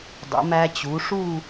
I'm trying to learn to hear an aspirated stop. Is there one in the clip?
no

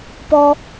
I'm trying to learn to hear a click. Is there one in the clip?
no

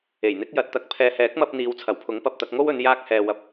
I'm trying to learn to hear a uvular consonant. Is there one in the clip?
no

